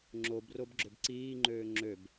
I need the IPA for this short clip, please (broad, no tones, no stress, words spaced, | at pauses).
ŋ͡ǁobrob ɡ͡ǁøbǀiːŋ͡ǃøː ŋ͡ǁøb